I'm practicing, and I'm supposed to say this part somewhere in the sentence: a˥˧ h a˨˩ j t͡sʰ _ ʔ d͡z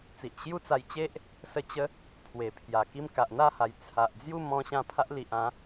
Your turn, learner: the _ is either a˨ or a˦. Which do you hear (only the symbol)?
a˨